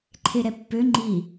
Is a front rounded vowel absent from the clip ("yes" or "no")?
no